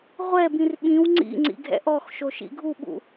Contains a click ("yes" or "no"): yes